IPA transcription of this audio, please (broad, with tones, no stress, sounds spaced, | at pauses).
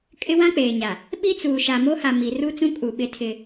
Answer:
kʼ ɪ˦ w ã˦ k͡p eː˨ ɲ a˨ | ɓ i˦ t͡s uː˨ ʃ a˨ m o˦ h a˨ m i˨ r u˦ t͡s ũ˦ kʼ u˨ ɓ ɪ˦ tʰ ɪ˦